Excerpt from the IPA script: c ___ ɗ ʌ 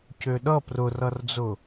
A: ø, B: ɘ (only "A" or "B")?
A